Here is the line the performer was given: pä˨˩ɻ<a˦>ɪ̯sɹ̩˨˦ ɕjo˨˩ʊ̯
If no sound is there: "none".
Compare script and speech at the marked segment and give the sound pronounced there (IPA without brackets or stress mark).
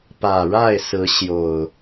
a˥˨